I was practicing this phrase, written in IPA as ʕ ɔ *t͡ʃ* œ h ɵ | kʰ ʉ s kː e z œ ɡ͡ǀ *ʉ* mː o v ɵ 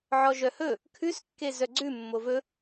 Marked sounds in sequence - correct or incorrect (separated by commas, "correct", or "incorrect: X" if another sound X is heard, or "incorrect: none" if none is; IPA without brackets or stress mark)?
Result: incorrect: ʒ, correct